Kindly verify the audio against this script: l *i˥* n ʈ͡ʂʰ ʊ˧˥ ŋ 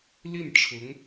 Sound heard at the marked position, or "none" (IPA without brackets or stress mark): i˥˩